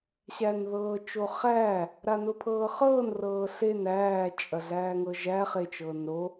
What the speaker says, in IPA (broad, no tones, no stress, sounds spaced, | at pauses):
ɕ æ n ð ɤː t͡ʃ o χ æː | ɾ a n ʊ pʰ ɤː χ ɤː n r ɤː ɬ e n æː t͡ʃʼ ɐ ɮ æː ŋ ɤ ʒ æ χ e t͡ʃ ɤː n ɾ o